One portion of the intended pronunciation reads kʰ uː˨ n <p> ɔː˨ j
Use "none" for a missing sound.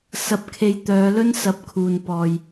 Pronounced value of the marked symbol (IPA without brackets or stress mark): p